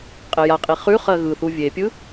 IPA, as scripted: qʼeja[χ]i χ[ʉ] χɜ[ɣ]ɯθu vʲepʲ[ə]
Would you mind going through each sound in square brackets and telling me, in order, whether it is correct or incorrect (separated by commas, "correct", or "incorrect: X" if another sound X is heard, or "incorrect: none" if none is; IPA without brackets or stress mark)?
incorrect: qʼ, correct, correct, incorrect: ɯ